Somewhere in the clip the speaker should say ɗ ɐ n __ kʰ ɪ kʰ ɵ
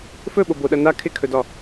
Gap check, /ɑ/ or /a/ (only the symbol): a